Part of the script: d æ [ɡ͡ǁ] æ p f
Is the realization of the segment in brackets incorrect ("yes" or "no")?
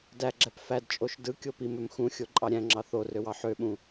no